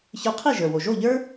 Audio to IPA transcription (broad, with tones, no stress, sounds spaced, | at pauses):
ç ə˞˧ qʰ i˥˩ ʒ ə˞˩ w o˩ ʒ o˥˩ ʎ ə˞˥